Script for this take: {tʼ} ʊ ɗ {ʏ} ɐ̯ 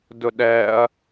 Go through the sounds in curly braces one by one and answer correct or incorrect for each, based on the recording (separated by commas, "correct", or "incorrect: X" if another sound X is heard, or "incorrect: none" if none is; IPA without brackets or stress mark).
incorrect: d, incorrect: ɛ